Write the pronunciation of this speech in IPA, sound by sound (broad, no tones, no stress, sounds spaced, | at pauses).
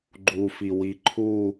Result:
ɡ͡ǃ u f i w i ǃʰ u